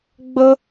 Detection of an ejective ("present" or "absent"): absent